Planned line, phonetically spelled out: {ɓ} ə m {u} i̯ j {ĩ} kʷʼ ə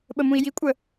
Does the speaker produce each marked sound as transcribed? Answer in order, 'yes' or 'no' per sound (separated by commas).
yes, no, no